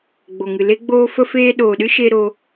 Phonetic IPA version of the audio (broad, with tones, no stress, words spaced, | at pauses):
ɡ͡bo˨ŋɨ˨le˦ɡ͡boː˦ fə˦feː˦ ɗoː˨ɗɨ˦ʃe˧ ɾo˦